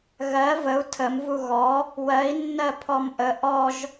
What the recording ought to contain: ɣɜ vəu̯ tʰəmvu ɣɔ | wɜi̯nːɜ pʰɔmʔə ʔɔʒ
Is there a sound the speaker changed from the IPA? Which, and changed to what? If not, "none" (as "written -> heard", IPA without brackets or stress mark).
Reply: none